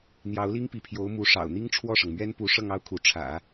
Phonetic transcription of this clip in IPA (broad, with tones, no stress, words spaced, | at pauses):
n̪jɑ˧˥ʊ̯li˥ŋpi˧˥pʰjo˧˥ʊ̯ mu˧˥ʂɑ̰˨˩ʊ̯ n̪i˥ŋʈ͡ʂʰwɔ˥˩ʂɤ˩ŋmɥɛ˥n pu˧˥ ʂɤ˥˧ŋɑ˥˩ʊ̯kʰu˧˥ ʈ͡ʂʰä̰˨˩˦